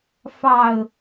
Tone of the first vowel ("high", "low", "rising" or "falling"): low